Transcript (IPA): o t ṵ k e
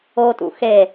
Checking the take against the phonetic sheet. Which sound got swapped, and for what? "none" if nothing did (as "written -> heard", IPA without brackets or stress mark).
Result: k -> x